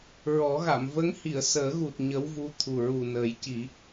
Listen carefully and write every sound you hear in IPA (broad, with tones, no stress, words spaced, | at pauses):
ɹɔ˨˩˦ɣa˨˩˨m və˧˥ŋhi˨˩˨ə̯ səː˨˩˦ɣu˨˩t̚ ɲə˧˥wvu˧˥t̪ʰu˨˩ ɹu˨˩nəː˨˩˦jci˨˩˦